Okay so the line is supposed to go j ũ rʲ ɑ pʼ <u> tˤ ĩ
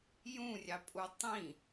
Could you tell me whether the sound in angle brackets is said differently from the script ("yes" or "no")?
no